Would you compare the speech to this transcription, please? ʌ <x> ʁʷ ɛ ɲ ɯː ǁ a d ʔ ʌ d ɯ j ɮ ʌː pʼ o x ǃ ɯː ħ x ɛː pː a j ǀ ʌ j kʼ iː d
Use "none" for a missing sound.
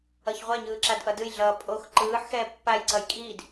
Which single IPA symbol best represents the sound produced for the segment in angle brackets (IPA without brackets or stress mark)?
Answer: ç